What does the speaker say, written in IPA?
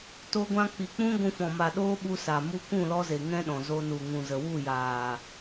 t o˧ ɡʷ ã˧ k͡p i˨ k͡p ũ˦ ɡʷ ũ˧ f ɔ̃˨ m a˨ ɗ oː˦ ɓ u˧ s a˨ m u˧ k ũ˦˨ l ɔ˧ z e˨ ŋ ɛ̃˦ ɗ ɔ̃˨ z o˧ n u˨ ŋ ũ˨ z ə˨ w u˦˨ j aː˨

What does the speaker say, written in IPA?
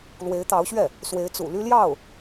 l w e˧˥ ɪ̯ t̪ ɑ˧˥ ʊ̯ ɕ ɥ ɛ˥˩ | s w e˧˥ ɪ̯ t͡s ṵ˨˩ l y˥ l j ɑ˥˩ ʊ̯

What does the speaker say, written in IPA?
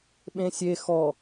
ɓ ẽ sʲ e x ɔ

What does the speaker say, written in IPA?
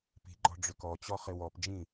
p i̤ ɡ͡ǃ ɔ̤ ɖ͡ʐ ʏ k ɔ t͡ɕ ɔ χ ɪ w ɔ p d͡ʒ ĩ

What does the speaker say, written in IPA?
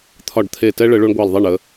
t̪ʰ ɒ˧˩ ɖ t̪ʰ e˧˩ t ɛ˦ ɭ ə˩˧ ɭ o˦ ɳ ɡʷ ɑ˧˩ l ðˤ ɛ˥˩ ɳ ə˩˧

